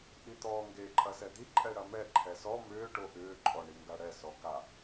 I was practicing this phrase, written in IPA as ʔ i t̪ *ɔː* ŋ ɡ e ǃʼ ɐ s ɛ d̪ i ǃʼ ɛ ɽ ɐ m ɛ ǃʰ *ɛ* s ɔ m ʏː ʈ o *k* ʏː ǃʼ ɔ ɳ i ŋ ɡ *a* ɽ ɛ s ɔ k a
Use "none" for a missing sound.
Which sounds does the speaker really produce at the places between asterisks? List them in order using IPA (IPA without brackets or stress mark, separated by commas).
ɔː, ɛ, ʔ, a